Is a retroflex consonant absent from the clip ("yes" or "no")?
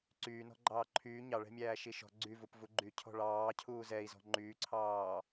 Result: no